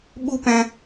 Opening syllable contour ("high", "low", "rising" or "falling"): high